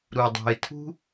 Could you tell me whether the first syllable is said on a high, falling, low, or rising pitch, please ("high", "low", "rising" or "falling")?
low